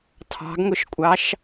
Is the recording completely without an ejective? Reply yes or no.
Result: no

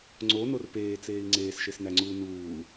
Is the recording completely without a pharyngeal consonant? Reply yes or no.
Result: yes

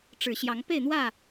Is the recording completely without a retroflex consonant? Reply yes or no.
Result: no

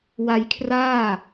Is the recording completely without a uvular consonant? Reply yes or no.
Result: yes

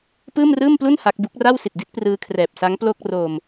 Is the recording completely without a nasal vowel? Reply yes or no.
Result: yes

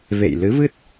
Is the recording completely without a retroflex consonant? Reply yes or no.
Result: yes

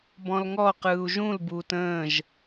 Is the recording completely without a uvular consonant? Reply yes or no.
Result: no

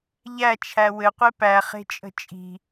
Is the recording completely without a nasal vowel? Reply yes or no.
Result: yes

